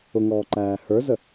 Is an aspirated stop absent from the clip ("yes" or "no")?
yes